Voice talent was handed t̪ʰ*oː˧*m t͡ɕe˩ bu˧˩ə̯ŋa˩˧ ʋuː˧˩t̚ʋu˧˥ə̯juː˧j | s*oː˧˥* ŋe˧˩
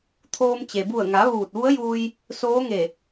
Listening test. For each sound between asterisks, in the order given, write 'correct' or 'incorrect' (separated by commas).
correct, correct